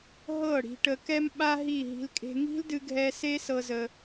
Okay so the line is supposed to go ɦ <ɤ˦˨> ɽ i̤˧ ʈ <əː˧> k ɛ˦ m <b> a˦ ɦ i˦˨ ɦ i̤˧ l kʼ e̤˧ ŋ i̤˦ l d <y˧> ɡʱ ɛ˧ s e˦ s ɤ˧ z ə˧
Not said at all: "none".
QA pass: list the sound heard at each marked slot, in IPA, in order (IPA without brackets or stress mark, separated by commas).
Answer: ɤ˦˨, ə˧, ɓ, ɨ˧